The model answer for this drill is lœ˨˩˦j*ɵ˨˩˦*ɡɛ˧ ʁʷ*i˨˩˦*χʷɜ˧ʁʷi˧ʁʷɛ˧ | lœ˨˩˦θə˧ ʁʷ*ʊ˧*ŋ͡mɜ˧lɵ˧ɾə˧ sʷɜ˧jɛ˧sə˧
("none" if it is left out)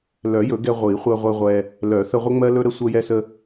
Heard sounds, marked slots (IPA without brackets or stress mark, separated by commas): ɵ˨˩˦, i˨˩˦, ə˧